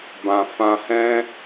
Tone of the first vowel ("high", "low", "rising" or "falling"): low